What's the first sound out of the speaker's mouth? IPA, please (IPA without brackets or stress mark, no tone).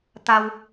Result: t̪